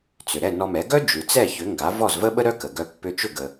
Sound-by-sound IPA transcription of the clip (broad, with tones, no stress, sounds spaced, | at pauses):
t͡s ʏ˩ ɾ ɛ˥˩ n ɔ˧ m ɛ˩˥ ɡ œ˥ d͡ʒ ʉ˩ t͡s ɛ˥˩ ç ʏ˩˥ ŋ ɡ a˩˥ v ɔ˥˩ z v ə˥ ɓ ə˥ ɾ œ˥ k ə˩ ɡ œ˧ pː ʏ˧ t͡ʃ ʏ˥˩ ɡ ə˩